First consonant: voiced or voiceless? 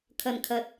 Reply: voiceless